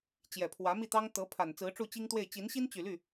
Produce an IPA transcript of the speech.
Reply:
t͡ɕ j ɛ˨˩ pʰ w ä˧˥ m i˥˩ t̪ ɑ˥ ŋ t̪ ɤ˧˥ pʰ a˨˩ n t͡s ɹ̩˧˥ ʈ͡ʂ u˥˩ t͡ɕ i˥ ŋ t̪ w e˥˩ ɪ̯ t͡ɕ i˧˥ n ɕ i˥ n t͡ɕ y˨˩ l y˥˩

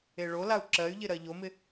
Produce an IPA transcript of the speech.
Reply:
e ɭ o l a u̯ ǁ ɜ y̯ ʎ ɪ ɾ ɜ ʎ o m ɪ

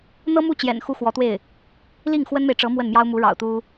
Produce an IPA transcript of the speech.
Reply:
n̪ ɤ˥ m u˥˩ t͡ɕ j ɛ̰˨˩ n x u˥ x w ɔ˧˥ t̪ w e˥˩ ɪ̯ | l i˥˩ ŋ x w ə˥ n m e˨ ɪ̯ ʈ͡ʂ ɤ˧˥ m w ə˥˩ n m j ɑ˥ ʊ̯ m u˧˥ ɻ ɑ̰˨˩ ʊ̯ t̪ u˥

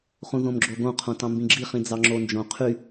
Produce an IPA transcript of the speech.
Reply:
χ ũ ð õ m ɡ͡ǁ o ɡ õ qʰ õ t ɑ̃ m b ĩ ɡ͡ǁ i χ ĩ d͡z ɑ ŋ͡ǁ o n d͡ʒ õ qʰ y

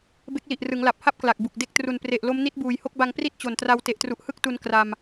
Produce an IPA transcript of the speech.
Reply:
b e˦˥ k̚ l i˨˩ ʔ r ɯ˩˦ ŋ l a˨˩ p̚ h a˥˩ p̚ k l a˨˩ k̚ b u˨˩ k̚ d e˥˩ k̚ t r u˨˩ n p r e˨˩ ʔ l o˦˥ m n i˦˥ t̚ b uː˨˩ j h o˥˩ k̚ b a˧ ŋ p r i˥˩ t̚ t͡ɕ o˨˩ n t r a˧ w t e˨˩ ʔ t r u˨˩ ʔ h ɯ˥˩ k̚ t u˧ n k r a˧ m

